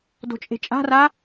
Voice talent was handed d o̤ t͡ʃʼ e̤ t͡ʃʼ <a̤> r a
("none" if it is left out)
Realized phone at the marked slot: a̤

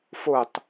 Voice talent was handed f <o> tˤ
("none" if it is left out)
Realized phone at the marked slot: o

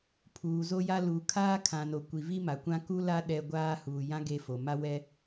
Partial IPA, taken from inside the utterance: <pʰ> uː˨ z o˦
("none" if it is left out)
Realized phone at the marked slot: pʰ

